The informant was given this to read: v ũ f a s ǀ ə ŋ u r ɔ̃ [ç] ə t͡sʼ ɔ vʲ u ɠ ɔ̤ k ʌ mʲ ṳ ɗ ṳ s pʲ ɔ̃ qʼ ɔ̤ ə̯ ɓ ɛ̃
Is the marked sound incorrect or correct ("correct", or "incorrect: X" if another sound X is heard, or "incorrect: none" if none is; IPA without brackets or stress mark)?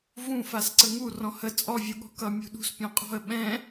incorrect: h